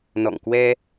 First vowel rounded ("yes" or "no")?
yes